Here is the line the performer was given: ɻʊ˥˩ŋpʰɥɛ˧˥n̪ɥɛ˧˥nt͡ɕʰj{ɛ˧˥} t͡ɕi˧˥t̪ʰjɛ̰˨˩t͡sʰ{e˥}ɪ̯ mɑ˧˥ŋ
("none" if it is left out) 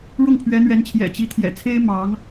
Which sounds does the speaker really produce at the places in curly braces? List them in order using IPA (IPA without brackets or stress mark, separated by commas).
ɛ̰˨˩, e˥